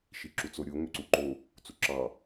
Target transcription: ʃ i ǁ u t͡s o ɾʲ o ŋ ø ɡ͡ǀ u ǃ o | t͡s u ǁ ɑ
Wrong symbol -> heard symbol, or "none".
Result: ɡ͡ǀ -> ǀ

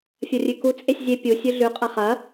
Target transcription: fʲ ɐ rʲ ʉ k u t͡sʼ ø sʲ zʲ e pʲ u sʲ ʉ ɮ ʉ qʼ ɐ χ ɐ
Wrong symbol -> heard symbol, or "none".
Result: ø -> e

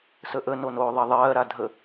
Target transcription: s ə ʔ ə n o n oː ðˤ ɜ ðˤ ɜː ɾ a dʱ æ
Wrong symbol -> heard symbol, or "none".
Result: æ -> ə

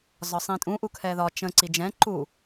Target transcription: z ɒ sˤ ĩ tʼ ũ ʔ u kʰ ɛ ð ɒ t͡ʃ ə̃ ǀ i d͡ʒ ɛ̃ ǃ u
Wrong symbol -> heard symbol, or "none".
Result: none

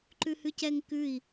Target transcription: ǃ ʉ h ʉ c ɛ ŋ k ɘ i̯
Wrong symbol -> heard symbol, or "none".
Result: ɘ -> ʉ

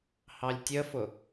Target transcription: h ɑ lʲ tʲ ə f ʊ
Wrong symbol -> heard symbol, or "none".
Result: none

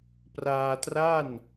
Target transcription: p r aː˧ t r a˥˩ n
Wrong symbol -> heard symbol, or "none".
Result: none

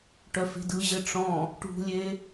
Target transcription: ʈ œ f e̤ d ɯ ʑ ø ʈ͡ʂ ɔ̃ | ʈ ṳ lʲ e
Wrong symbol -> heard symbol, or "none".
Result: ø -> ɘ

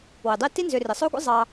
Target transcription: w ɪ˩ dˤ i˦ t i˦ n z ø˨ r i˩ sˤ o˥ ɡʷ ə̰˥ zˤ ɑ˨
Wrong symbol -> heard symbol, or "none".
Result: none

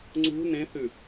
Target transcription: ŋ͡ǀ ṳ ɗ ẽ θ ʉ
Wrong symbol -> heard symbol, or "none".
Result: ɗ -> n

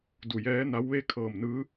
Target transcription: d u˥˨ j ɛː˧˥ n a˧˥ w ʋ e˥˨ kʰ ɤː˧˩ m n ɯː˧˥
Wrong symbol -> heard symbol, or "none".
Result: u˥˨ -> u˧˩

